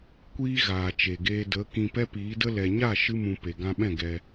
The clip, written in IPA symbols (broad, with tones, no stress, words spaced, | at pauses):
kʷiː˧ ɣaː˨t͡ʃe˨ɡeː˧də˨˦ kĩ˧pɛ˦piː˨˦də˦ lɛ˨ɲa˦˨ ʃɨ˦mũ˧ pe˨ɡã˧ɓɛ̃˦˨ ɡɛ˧